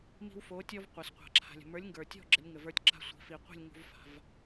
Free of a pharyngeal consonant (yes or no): yes